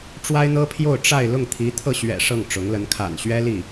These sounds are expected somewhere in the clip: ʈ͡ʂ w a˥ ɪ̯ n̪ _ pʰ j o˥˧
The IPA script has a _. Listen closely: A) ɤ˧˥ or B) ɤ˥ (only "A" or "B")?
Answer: B